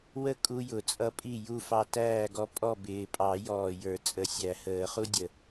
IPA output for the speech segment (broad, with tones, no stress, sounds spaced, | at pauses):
w ə˦ kʼ u˦ j ʊ˨˩ t͡sʼ ʌ˦ pʼ i˥˨ j u˥˨ f ɑ˦ t æː˥˨ ɡ ɔ˦ pʼ ɔ˥˨ b ɪː˨˩ pʼ ɑ˨˩˦ j ɔː˨˩ j ə˞˨˩˦ t͡sʼ ə˨˩ sʲ æ˨˩˦ h əː˨˩˦ χ u˦ dʲ ə˨˩